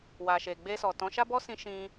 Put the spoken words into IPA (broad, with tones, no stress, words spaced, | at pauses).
wa˨ʃe˨ ɡ͡be˧sɔ˨ tɔ̃˨˦ʃa˦bɔ˦sĩ˧ ʃĩ˧